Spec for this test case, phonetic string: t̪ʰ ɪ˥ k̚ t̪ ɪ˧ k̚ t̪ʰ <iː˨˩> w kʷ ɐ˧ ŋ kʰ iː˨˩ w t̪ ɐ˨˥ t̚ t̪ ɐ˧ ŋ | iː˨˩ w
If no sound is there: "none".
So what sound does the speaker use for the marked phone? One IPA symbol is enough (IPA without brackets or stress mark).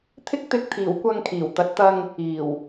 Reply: iː˨˩